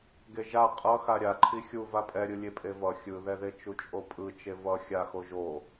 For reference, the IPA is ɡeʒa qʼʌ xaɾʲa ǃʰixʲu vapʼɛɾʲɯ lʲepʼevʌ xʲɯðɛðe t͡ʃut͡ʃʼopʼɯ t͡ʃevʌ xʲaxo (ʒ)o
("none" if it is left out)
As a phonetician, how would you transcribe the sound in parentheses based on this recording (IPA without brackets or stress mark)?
ʒ